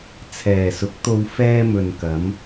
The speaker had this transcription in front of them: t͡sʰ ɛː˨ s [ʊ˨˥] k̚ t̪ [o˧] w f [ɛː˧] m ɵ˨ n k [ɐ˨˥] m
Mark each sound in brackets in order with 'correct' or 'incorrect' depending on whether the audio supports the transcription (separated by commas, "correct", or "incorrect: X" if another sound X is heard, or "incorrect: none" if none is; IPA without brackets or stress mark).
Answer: correct, correct, correct, incorrect: ɐ˨˧